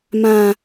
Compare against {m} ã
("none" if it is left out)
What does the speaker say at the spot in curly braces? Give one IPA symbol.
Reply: m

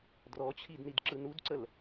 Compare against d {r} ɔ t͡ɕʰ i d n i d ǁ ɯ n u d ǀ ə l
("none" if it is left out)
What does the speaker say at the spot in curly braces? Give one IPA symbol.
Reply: r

